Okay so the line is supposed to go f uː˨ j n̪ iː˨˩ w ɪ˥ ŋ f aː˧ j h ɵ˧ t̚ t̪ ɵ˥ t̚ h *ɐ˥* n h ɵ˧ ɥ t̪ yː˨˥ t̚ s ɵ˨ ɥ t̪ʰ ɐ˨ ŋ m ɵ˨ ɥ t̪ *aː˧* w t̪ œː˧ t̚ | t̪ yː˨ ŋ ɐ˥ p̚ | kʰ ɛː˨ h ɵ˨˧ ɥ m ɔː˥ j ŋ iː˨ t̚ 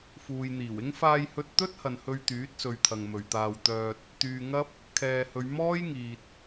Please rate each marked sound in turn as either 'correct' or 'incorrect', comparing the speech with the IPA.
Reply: incorrect: ɐ˨, correct

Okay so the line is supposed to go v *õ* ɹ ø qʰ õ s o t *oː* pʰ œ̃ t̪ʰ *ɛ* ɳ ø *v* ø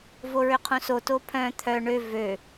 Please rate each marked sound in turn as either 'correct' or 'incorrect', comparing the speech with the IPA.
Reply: incorrect: o, incorrect: o, incorrect: œ, correct

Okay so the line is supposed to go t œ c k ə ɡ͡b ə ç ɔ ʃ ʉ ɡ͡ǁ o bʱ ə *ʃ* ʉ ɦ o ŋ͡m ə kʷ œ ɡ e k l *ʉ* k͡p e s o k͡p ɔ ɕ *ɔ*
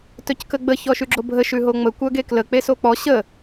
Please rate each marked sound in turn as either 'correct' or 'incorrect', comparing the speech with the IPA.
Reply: correct, incorrect: ə, incorrect: ə

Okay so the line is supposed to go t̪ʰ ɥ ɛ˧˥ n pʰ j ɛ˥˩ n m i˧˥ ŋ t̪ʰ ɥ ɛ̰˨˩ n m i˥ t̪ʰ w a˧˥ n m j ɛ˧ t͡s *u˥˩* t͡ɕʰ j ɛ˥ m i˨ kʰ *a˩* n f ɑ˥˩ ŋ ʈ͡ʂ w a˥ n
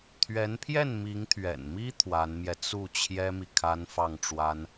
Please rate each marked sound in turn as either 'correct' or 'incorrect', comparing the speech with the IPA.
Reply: correct, incorrect: a˥

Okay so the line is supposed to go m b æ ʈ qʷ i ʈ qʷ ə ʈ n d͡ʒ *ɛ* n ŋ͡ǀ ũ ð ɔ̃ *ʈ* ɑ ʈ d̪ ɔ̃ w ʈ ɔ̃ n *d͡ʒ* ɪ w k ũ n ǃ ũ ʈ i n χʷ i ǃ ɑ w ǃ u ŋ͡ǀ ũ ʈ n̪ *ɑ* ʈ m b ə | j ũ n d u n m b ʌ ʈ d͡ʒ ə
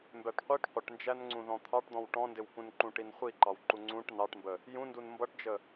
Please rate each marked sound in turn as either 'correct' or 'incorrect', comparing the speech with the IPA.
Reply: incorrect: æ, incorrect: t̪ʰ, incorrect: d, correct

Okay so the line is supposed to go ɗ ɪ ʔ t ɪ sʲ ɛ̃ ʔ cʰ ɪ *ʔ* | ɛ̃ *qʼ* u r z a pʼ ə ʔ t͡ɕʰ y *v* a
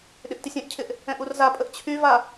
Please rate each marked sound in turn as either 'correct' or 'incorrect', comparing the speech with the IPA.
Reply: correct, incorrect: ʔ, correct

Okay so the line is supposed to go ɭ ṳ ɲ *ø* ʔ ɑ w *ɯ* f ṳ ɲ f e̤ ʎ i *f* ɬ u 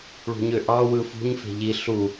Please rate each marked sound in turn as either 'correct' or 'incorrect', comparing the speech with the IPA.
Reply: correct, correct, incorrect: none

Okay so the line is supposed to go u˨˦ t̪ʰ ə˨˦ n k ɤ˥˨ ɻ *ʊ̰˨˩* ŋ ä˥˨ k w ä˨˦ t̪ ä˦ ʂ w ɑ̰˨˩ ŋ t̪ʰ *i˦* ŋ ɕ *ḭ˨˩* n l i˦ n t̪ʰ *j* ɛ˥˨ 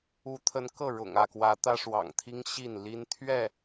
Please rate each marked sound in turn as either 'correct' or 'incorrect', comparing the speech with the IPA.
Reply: correct, correct, incorrect: i˥˨, incorrect: ɥ

